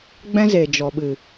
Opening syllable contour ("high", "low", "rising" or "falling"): high